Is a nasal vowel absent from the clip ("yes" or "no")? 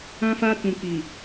no